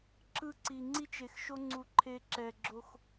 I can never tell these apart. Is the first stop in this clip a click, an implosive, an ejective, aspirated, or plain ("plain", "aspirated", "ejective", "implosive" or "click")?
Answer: click